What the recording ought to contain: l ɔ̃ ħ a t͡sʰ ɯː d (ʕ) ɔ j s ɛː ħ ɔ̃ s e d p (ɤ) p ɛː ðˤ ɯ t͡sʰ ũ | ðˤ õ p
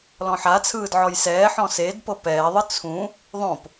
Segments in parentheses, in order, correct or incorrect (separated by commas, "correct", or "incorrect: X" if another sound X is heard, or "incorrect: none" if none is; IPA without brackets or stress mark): correct, correct